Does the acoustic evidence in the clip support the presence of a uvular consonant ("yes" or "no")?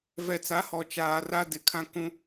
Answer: no